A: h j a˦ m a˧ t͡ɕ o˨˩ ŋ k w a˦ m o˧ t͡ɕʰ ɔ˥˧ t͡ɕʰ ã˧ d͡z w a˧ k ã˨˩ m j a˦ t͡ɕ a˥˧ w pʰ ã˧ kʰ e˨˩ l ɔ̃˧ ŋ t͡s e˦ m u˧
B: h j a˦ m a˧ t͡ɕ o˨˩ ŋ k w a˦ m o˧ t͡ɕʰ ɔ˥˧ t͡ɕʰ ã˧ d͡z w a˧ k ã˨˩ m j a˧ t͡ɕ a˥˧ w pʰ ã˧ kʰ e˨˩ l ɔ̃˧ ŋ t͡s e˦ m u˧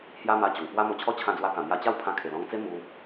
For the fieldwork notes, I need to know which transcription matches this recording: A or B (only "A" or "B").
B